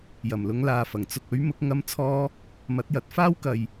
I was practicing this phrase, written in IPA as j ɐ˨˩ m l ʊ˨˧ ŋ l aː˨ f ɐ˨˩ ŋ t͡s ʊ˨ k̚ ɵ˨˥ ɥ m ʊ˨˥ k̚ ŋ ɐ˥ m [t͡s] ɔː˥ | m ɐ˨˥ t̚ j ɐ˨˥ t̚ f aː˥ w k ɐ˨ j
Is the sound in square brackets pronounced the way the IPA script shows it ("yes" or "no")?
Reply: no